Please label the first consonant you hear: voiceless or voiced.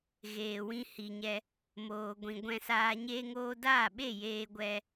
voiced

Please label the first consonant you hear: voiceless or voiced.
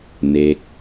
voiced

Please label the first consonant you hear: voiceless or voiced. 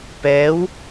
voiceless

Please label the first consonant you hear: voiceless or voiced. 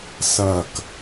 voiceless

